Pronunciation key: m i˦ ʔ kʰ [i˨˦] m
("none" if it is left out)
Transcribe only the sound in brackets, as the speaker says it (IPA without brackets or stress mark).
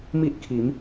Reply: i˨˦